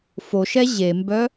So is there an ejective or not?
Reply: no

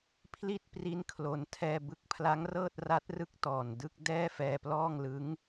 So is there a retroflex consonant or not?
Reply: no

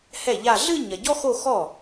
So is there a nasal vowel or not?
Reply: no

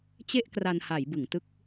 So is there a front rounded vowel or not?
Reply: no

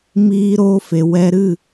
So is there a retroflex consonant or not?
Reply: no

